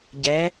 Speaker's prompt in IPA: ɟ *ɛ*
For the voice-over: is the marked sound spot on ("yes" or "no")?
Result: yes